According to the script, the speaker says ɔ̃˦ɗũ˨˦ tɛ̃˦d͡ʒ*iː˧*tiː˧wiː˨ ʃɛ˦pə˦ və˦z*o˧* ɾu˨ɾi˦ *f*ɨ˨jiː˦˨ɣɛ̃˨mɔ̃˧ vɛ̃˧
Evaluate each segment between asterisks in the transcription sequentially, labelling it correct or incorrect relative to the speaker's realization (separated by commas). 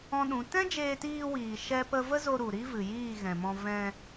incorrect, correct, incorrect